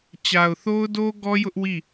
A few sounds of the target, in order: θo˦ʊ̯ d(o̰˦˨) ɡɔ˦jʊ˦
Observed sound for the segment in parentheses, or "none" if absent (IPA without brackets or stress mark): o˦